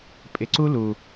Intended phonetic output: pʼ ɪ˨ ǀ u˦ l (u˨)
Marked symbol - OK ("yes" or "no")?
yes